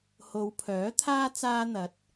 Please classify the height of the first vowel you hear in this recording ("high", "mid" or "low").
mid